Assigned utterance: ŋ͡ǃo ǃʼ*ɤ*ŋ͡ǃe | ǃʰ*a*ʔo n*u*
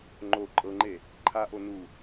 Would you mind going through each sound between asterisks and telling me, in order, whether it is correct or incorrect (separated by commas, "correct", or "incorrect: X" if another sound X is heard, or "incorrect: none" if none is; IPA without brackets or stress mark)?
correct, correct, correct